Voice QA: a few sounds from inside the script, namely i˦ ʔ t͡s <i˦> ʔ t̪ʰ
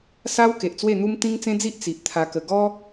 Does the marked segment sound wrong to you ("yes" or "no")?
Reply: yes